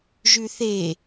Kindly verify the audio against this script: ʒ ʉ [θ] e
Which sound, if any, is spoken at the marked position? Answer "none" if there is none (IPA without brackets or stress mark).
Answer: θ